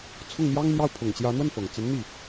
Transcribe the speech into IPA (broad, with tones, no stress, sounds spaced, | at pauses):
t͡sʰ ʊ˥˩ ŋ n̪ j ɑ˥ ŋ n̪ j ɑ˥˩ ʊ̯ pʰ ʊ˨˩ ŋ t͡ɕ j ä˧˥ n̪ w ə˥˩ n f ɤ˨˩ ŋ t͡s ə˧˥ n n̪ i˥˩